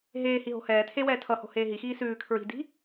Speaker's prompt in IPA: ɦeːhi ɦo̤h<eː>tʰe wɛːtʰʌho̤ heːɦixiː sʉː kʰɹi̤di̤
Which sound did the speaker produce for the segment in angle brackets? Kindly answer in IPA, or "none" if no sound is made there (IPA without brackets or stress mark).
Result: ɛː